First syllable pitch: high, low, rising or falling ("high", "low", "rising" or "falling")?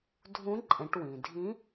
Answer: rising